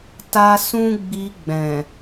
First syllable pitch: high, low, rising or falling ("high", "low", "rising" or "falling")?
high